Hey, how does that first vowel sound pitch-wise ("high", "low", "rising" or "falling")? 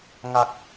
low